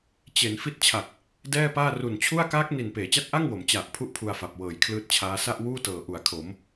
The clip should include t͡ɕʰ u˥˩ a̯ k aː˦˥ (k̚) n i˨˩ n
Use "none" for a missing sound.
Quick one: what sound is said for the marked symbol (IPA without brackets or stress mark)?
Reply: k̚